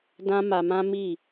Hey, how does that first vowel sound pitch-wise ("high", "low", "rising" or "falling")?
high